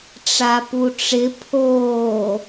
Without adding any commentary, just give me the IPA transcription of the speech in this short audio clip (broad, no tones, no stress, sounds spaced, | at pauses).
ʈ͡ʂ a p u ʈ͡ʂ ɪ pʰ oː